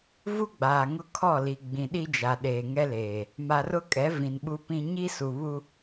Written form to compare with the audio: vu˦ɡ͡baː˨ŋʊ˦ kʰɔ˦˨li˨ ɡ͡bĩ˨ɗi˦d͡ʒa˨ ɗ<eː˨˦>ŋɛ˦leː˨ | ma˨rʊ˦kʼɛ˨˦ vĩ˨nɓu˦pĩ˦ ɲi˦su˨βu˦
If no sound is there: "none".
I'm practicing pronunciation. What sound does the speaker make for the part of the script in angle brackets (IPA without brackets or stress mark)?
eː˨